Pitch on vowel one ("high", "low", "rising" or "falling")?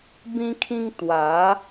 high